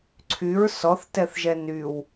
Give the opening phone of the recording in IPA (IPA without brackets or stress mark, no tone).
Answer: ǀʰ